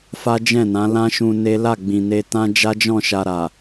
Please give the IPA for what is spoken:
f a˦ d͡ʒ ɛ̃˦˨ n ã˨˦ l ã˦ ʃ ũ˧ n e˦ l a˦˨ ɡ͡b ĩ˨ n e˧ t ã˦ d͡ʒ a˦ d͡ʒ ɔ̃˦˨ ʃ a˧ ɾ a˨

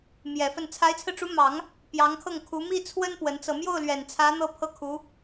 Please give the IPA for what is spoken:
m j ɛ˨˩ f ə˥˩ n t͡sʰ a˧˥ ɪ̯ t͡sʰ ɹ̩˧ ʈ͡ʂ u˧˥ m ɑ˨˩˦ ŋ | p j ɑ˧˥ ŋ kʰ ɤ˥˩ ŋ kʰ u˧˥ m i˥˩ t͡sʰ w ə˥ n p w ə˧˥ n t͡s ɤ˧ m j o˥˩ ʊ̯ l ɥ ɛ˨˩ n t͡sʰ ä˧˥ n̪ ɤ˥˧ pʰ ɤ˥˩ kʰ u˧˥

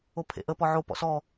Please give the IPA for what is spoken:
o pʰ ḛ ʔ ə p ɔ ʕ o p ɔ̰ s ɔ

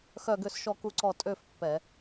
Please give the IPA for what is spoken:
x œ˦˨ ɡ ø˦˨ s ʃ ɔ˦˨ k u˦˨ ǀ ɔ˦˨ tʼ ø˦˨ f pː ɛ˧˩˧

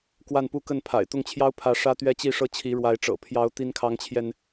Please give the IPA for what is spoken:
k w a˥˧ n p u˥˧ k ə˥˩ n pʰ a̰˨˩ ɪ̯ t̪ ʊ˥˩ ŋ t͡ɕʰ j ɑ˥ ʊ̯ pʰ ä˧˥ ʂ ä˥ t̪ ɥ ɛ˥ t͡ɕ i˥˧ ʂ ɤ˥˩ t͡ɕʰ i˧˥ ɻ w a˧˥ ɪ̯ ʈ͡ʂ ɤ̰˨˩ pʰ j ɑ˧˥ ʊ̯ t̪ i˥ n kʰ ɑ˥ ŋ t͡ɕʰ j ɛ˨ n

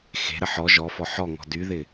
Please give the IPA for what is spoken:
x e̤ ɾ ə ħ ɔ ʒ ɔ f ɔ ħ ɔ ŋ ɔ̤ d y ð ɪ

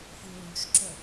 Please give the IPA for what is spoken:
f ɯ ɹ u ʃ ǁ œ

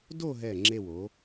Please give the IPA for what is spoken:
d o˥˧ ɦ ɛ˧˩ ŋ͡ǁ e˧˩ w o˩˧

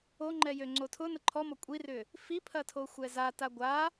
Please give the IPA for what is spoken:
o ŋ͡ǃ ɛ j ø ŋ͡ǀ o tʰ ʊ n ə ǃʰ ɔ m ɔ kʷʼ i r ʏ | f i pʰ ɐ tʰ o xʷ ɛ z a t a ɡʷ a

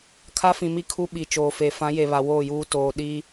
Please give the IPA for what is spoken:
kʰ a˦ f ĩ˨ m i˦ kʰ u˦ ɓ i˨ t͡ʃ oː˨ f e˨ f ã˨˦ j e˨ β a˨ w oː˦˨ j uː˦ t oː˦ ɗ i˦

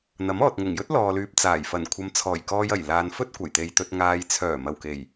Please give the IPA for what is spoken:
n̪ ɐ˨˥ m ɔː˨ t̚ ŋ ʊ˨˩ ŋ j ɵ˥ t̚ l ɔː˨ l yː˨ p̚ t͡s aː˨˩ j f ɐ˨˩ n kʷʰ ɐ˨˧ m t͡sʰ ɔː˨˩ j k ɔː˧ j ɐ˨˩ j l aː˨ n f ɵ˥ t̚ kʷ ɐ˨˩ j t̪ e˨ j t̪ ɵ˨ t̚ ŋ aː˨ j t͡sʰ œː˨˩ m ɐ˨˩ w k e˨˩ j

